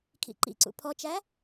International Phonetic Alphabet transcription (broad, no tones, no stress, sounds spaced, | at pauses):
kʰ ḭ ǃ ḭ ǀ ṵ pʰ ɔ t͡ʃ æ